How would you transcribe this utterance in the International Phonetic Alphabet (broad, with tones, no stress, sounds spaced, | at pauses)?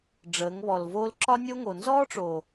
ɖ͡ʐ əː˨˦ ŋ β ɔ˨ l v oː˦ l ǁ ɒ˦ nʲ o˦ ŋ o˨ n z ɔː˦ ʈ͡ʂ o˨